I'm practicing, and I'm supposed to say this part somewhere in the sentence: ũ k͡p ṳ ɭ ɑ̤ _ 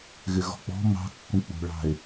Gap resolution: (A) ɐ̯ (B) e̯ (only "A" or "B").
B